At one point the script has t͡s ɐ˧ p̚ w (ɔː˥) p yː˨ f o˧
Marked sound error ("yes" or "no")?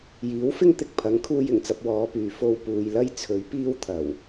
yes